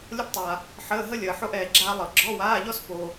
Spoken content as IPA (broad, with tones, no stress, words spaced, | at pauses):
lʲɤ˥ptˤa˨ | ħəː˧˥˧ɦə˥ lʲəː˨ħo˥ʔɛː˨ ɡ͡ǁaː˥lˠɤ˨˩˦ ɡ͡ǁɔ˧˥˧waː˧˥˧ʎɔ˥spo˨